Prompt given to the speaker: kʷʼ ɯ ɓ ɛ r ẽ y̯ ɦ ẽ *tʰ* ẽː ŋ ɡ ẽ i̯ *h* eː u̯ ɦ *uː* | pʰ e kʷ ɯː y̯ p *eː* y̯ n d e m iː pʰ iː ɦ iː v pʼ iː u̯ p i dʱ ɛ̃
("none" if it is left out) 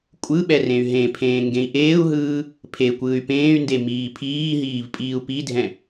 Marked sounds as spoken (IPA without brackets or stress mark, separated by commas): pʰ, ʔ, ɯː, ẽː